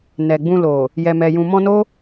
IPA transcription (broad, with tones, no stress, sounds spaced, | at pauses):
n ɛ˨ ɡ͡b ũ˧ l o˨ | j ɛ˨ m ɛ˨ j ũ˨ m ɔ̃˧ n o˦